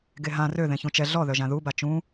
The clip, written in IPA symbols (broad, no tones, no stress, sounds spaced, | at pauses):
ɡ e ɦ ã r ø ð ẽ ç ũ t͡ʃ ɛ ɮ ɔ ð œ ʒ ã ð u b a t͡ʃ ũ